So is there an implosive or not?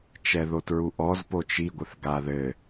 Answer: no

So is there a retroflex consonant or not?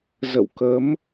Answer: no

